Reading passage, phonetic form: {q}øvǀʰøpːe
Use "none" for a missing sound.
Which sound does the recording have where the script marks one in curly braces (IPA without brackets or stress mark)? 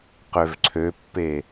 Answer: q